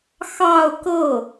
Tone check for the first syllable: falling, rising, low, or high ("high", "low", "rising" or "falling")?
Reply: falling